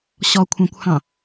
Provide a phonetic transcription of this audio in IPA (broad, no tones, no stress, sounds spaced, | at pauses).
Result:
ɕ ɔ kʷʰ ɑ̃ kʷ h ɑ̃